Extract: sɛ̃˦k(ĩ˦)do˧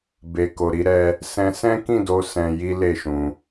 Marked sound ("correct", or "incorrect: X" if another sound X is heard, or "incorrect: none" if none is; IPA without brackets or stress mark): incorrect: ĩ˦˨